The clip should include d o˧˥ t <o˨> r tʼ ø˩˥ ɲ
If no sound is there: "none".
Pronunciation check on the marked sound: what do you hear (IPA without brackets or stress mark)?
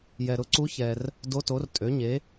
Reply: o˩˥